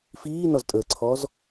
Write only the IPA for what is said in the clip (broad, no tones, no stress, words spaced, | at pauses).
fiːnɔztʼəːǀʰɔz